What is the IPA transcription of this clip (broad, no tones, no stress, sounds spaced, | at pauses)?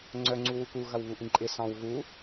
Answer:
ŋ͡ǀ œ ŋ͡ǀ u w u k u ɣ ɐ w β u ʔ ĩ ǃʼ ɪ s ɑ̃ w ɣ u